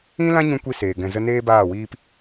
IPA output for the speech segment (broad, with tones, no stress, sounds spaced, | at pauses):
ĩ˦ l ã˦ ɲ ũ˧ kʷ i˦ s eː˨ ɡ ɛ̃˨ z ə˧ n eː˦ b aː˦˨ w iː˦ p